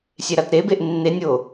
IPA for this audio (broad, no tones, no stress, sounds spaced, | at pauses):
sʲ e ɾ a t ɾ e b e ʔ nː e nʲ o